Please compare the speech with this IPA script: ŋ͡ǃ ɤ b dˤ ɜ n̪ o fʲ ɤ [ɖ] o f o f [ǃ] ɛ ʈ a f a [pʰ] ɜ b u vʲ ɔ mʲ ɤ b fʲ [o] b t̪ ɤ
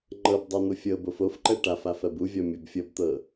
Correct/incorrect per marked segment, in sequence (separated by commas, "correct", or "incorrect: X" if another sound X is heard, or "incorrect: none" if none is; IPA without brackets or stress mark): incorrect: b, correct, incorrect: f, incorrect: ɤ